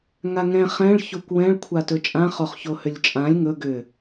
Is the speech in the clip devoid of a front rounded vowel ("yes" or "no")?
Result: no